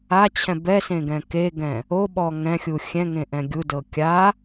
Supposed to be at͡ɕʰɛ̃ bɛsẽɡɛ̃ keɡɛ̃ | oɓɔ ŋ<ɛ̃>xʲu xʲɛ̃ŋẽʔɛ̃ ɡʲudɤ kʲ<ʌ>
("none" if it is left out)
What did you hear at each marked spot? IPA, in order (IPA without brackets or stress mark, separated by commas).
ɛ̃, a